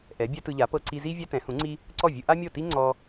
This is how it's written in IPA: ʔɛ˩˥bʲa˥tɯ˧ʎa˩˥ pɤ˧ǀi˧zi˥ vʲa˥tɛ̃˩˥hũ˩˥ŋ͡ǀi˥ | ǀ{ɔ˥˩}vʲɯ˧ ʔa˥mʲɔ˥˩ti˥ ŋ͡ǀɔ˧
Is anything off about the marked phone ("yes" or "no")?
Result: no